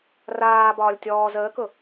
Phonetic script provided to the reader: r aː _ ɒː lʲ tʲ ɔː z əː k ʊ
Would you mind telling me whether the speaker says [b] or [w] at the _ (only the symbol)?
b